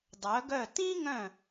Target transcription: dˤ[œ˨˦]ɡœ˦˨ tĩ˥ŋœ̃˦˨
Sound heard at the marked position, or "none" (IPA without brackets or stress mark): œ˨˦